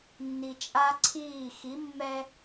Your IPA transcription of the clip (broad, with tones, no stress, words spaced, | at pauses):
nːi˨t͡ʃʼa˦ǀʰiː˦˨ xi˨˦mːɛ˦